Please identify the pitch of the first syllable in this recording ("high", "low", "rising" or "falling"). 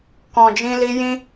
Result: low